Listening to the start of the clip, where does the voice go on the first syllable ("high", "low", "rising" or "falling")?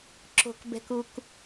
low